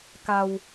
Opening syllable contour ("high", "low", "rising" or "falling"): low